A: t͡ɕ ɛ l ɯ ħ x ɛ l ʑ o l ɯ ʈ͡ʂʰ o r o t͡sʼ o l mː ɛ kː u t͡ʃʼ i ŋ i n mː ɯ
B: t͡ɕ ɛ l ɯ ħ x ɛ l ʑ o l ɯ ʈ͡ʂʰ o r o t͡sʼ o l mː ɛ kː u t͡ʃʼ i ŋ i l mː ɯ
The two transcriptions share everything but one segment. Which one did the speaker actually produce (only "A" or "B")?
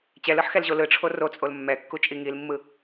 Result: B